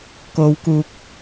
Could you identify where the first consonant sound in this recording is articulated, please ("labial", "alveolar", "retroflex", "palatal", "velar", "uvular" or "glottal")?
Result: velar